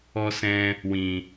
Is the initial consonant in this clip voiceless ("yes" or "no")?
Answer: yes